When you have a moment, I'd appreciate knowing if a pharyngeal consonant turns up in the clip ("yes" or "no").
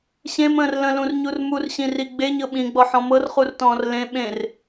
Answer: yes